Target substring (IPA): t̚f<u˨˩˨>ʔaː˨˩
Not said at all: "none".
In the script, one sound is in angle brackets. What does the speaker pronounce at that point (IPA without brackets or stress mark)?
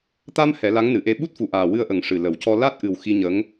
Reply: u˨˩˨